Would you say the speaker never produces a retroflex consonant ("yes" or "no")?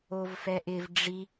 no